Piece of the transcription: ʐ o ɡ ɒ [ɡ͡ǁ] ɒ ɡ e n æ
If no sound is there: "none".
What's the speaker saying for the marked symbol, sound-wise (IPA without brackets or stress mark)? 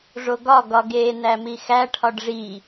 ɡ